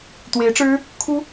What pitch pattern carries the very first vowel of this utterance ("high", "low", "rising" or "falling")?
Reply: rising